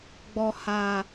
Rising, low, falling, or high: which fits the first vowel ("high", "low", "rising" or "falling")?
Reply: low